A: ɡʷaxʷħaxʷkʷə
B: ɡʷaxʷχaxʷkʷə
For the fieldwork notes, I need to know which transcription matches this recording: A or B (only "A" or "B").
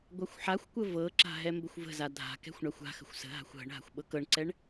A